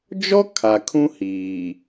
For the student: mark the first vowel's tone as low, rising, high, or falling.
high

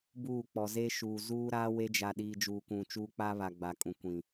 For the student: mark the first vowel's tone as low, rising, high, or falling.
falling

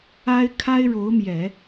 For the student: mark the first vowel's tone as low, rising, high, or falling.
high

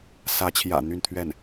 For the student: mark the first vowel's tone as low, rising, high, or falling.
rising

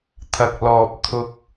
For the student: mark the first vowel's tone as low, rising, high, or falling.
low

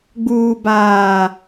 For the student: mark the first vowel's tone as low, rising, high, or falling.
low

